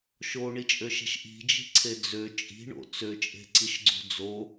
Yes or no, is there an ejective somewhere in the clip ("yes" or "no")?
yes